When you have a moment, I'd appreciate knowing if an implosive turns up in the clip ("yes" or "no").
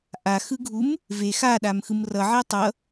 yes